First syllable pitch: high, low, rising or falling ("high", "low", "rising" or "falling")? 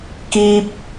high